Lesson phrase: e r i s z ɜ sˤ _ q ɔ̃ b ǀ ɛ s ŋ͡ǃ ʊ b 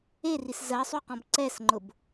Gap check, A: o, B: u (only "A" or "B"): B